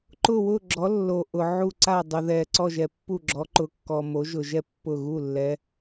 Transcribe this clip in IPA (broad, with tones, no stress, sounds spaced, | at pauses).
ǃ ʊ˦˨ w ʊ˦˨ ɡ͡ǁ ɔ˨˦ lː o˨ ʔ ʊ˨ ʕ u˦˨ ǀ a˦˨ dˤ u˨ ð ɛ˨ ǀ ɔ˦˨ ʒ ɛ˨ pː u˦˨ ɡ͡ǁ ɔ˨˦ ǃ ʊ˨˦ kː ɔ˨ m o˨˦ ʒ ʊ˨ ʒ ɛ˦˨ pː ʊ˦˨ ɣ u˦˨ lː ɛ˨˦